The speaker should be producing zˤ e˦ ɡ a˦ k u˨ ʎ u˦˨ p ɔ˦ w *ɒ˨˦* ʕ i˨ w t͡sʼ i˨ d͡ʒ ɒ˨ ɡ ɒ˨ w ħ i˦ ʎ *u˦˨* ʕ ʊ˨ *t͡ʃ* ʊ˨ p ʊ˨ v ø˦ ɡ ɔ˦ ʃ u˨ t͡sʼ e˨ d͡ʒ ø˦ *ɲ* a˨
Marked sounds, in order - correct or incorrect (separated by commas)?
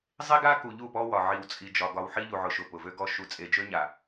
incorrect, incorrect, incorrect, correct